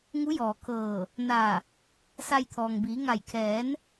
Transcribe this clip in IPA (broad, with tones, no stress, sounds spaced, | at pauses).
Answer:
ŋ u˧˥ j ɔː˩ kʰ ɤː˧˩ | n a˧˩ | s a˧ j t̪ʰ ɔː˩ ŋ b iː˩˧ ŋ a˧˩ j kʰ ɛː˩˧ n